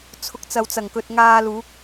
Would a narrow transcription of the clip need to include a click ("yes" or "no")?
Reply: no